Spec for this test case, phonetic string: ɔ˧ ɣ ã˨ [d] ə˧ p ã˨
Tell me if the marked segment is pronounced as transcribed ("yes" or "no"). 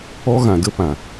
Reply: yes